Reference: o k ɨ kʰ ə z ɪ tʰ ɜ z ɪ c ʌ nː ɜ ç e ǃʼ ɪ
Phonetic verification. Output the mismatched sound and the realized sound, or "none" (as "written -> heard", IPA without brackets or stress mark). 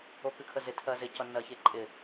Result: none